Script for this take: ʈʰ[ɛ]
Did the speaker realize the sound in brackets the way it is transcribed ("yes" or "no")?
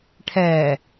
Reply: yes